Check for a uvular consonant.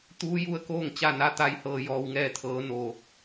absent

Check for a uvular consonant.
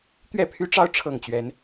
absent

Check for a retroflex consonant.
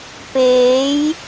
absent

